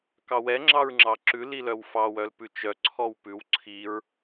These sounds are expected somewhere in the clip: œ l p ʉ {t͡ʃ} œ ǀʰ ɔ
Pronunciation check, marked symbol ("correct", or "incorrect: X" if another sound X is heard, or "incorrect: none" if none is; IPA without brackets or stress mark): correct